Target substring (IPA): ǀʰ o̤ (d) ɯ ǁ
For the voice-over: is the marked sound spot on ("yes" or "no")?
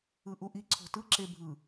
no